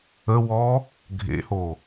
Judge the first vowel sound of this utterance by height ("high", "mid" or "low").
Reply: mid